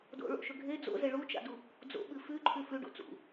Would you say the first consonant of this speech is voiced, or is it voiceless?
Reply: voiced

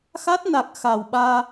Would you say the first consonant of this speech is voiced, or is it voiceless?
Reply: voiceless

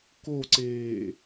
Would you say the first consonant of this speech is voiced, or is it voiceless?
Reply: voiceless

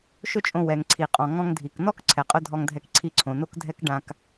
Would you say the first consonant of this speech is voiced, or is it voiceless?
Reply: voiceless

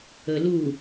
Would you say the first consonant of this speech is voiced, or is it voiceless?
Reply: voiced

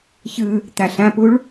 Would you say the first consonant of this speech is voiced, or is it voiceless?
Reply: voiceless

